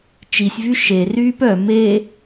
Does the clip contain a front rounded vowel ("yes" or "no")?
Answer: yes